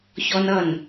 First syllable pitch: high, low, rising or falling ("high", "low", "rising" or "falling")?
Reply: high